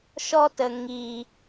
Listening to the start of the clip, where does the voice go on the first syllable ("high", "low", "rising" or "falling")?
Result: high